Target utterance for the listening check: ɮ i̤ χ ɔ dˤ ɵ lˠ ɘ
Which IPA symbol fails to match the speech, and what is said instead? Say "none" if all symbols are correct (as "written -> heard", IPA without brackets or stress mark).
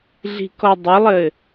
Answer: χ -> k